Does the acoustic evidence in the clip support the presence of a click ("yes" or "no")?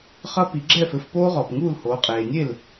yes